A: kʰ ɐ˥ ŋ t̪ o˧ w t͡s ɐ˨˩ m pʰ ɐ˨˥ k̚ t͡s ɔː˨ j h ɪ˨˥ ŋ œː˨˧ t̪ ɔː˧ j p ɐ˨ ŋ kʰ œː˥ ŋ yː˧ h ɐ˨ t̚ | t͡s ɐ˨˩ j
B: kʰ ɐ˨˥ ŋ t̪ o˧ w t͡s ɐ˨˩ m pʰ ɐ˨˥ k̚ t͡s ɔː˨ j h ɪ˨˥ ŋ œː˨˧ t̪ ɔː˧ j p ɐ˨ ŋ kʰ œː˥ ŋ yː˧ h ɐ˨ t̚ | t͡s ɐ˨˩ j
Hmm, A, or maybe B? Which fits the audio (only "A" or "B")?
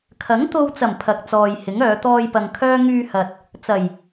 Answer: B